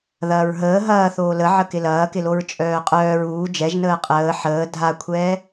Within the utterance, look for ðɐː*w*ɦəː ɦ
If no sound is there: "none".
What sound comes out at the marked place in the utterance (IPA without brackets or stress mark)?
ɹ